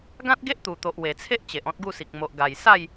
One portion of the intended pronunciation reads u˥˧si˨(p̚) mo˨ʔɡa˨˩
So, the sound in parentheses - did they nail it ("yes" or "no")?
no